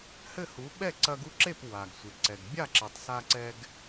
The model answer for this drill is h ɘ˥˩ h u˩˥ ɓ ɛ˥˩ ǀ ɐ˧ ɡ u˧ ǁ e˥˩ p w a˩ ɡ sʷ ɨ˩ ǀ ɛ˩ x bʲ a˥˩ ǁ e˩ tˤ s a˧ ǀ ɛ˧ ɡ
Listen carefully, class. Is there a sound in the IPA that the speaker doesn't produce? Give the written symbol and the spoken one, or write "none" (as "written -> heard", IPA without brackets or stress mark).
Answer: x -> ɡ